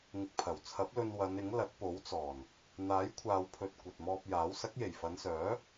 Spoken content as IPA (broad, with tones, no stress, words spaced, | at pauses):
ŋɪ˨k̚pʰɐ˨˩wt͡sʰɐ˨˥p̚lɵ˧n wɐ˨˧nɪ˨˥ŋ lɐ˨˥t̚ po˨˥wt͡sɔː˨˩n | n̪aː˨˥jkʷʰaː˨wpʰɵ˨t̚ kʷɐ˨t̚mɔː˧p̚jaː˨˥w sɐ˨˥k̚je˨˩jfɐ˨˧nsœː˨˥